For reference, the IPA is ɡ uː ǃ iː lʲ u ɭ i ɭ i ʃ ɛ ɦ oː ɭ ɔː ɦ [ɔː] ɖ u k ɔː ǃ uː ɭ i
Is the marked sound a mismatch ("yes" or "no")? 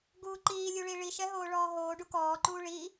yes